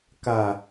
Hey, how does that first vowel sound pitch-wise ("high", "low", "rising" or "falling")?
low